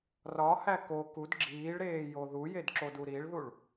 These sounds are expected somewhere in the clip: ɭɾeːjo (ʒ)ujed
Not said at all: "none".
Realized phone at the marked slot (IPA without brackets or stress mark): ð